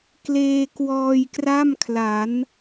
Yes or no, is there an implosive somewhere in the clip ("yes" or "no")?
no